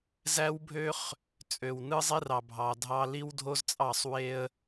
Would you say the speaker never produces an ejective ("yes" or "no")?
no